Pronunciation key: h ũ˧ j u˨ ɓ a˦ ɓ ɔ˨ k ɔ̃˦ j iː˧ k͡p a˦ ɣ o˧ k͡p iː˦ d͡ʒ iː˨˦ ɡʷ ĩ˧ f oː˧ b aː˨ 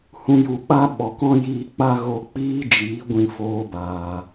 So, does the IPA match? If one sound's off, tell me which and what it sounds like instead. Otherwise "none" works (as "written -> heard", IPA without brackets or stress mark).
none